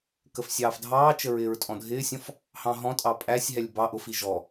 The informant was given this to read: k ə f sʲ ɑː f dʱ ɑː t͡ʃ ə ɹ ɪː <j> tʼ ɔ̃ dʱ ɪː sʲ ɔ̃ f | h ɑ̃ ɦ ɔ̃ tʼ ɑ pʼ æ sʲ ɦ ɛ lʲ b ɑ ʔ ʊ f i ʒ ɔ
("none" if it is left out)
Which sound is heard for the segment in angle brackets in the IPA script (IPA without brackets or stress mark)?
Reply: ɹ